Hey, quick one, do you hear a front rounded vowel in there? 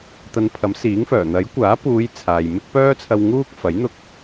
yes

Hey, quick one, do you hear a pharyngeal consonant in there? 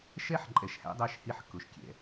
yes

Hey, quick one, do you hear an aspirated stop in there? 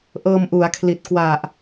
yes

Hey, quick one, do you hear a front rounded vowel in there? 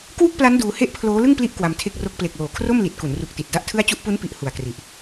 no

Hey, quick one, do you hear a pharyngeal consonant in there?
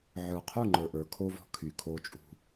yes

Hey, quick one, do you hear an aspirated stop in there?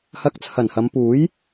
yes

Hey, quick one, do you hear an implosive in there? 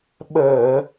yes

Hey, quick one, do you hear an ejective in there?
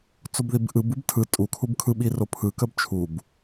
yes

